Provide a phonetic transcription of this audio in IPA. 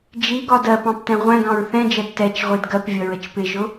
d͡ʒ i ɡ ɒ d ɜ p ɑ̃ p t ɛ̃ ʁʷ æ̃ ɡ ɑ̃ ɹ θ ɛ̃ d͡ʒ ɜ d t ɛ t͡ʃ ʁʷ i d ɡ ɜ p vʲ ʌ ɹ ə t͡ʃ p ɪ ʒ ʊ

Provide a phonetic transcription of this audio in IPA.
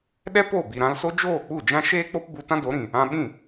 ɗ ɛ˦ p o˦˨ b i˨ ɾ ã˧ l s o˦ d͡ʒ oː˦˨ k͡p u˦˨ d͡ʒ ã˦ ʃ eː˦ k͡p o˦ p b u˧ t ã˦ d o˨˦ ɾ ĩ˨ | ã˧ ɓ ĩ˦˨

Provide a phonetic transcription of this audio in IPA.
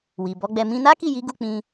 w i˨ b ɔ˨˦ ɡ͡b ɛ˧ m ĩ˧ n a˦ k i˦˨ j i˨˦ ɡ u˦˨ k͡p ĩ˧

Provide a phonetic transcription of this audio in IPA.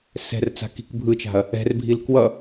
s ɛ̤ r t͡s a̤ k i̤ k bʱ ɯ t͡ʃ a̤ ɐ̯ | ɛ̤ r bʱ i l k w ʌ

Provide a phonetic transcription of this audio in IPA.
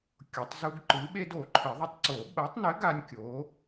kʲ o˨˩˦ tˤ z u˦ ɡ ǃ ɨ˨˥ ɓ e˦ d o˨˩˦ ǃʰ ɘ˨˩˦ ðˤ ɘ˦ tˤ ǀ o˨˩˦ ɓ ɐ˨˥ tˤ n ɘ˨˥ ɡ a˦ nʲ kʲ o˨˥

